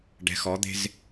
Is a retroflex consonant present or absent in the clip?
present